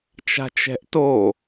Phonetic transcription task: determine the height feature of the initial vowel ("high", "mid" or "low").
low